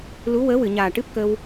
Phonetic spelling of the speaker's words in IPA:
lu˧˥wəː˧˥wɨ˨˩˨ ɲaː˨˩ʈɨ˦˥p̚ kə˧w

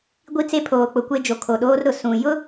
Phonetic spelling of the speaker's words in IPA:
ɡʷi˦t͡se˦ pʰoː˨k͡pʊ˨kʷe˦d͡ʒo˨ kʰo˨ɗoː˦rɾʊ˨ sũ˨ jʊ˦

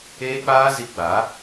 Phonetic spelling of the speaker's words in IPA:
eː˦k͡paː˦ zi˧ɡ͡baː˨˦

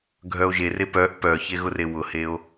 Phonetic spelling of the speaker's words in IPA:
ɡʱœo̯ʒere pœʔ pœçe ɣʊrewʊheo̯

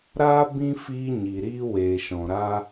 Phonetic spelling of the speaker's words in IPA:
ɾaː˦ bĩ˦ fiː˧ ɲi˨ɾiː˦ weː˨ʃɔ̃˨ɾaː˦

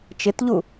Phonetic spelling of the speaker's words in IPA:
t͡ʃɪtʎu

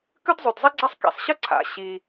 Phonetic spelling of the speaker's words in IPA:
kʉ˥dzˤʉ˩dzˤi˥ɡ͡ǀa˥sˤ kḭ˩sˤɕə˥ǀʰa̰˩ ɕi˩

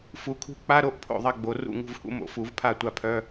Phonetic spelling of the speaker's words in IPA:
fu˨˩˦kʰṳ˥˩ k͡pa˧˥˧ɾo˥˧ʔ pʰo̰˥˩ðˤɐ˥˩ ɡ͡bo˨˩˦ rṵ˥˩ ŋṳ˥˩vhṵ˧˥˧mo̰˨˩˦ fu˨˩˦vpʰa˥˩ tʷa˥˩pʰœ˧˥˧

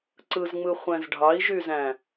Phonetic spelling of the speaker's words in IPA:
ǀɯzŋ͡mɯχʷæ̃z ɖʱɑi̯ʒyzæ̃

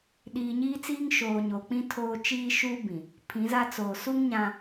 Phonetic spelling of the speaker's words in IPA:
ɗiː˨ɲiː˦t͡siː˦ŋ ʃoː˨ ɲo˨k͡pĩ˦ tʰoː˦ t͡ʃiː˦ʃuː˦bĩ˨ | pʰĩ˨˦za˦t͡soː˨ su˦ŋ ɲã˦

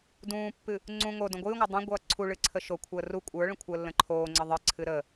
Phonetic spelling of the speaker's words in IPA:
dũːpːɨ | ŋ͡ǀũ ŋodõ ɡʷɨːŋʷə˞ dˤõ ɡʷʌːǀʰuɭɨ ǀʰəʃokʷʰəː ru kʷʼə˞ɭə̃ kʷʰəːlːə̃ǃʰoːŋ͡ǀə ðˤɨǀʰɨ ɾə

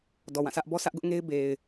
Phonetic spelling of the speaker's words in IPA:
dɔ˨wã˦˨sʰä˦ʔ bɔ˦sʰä˦ʔɡʊ˦ʔŋe˦ɪ̯ be˨ɪ̯

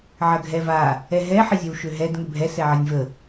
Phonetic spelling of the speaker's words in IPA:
ʕɐɡʱɛva | ɛɦɛ ħəzʲɐwʃøɦɛd ŋʏbʱɛ sɛʕɐnʲvə

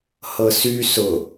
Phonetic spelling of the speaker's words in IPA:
hɤsy sʊ

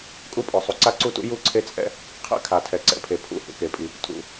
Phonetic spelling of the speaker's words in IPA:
kʼu˥pʼɔ˩ sˤu˩ǀa˥ǀu˥tṵ˥ ju˥ ǀʰe˥t͡sʼɛ̰˥ | qʰɛ̰˥ kʰa˩tʰɛ˩ ǀɛ̰˩pʰe˩ pʰṵ˥ hṵ˩ke˩pʼi˩ | tʰṵ˩

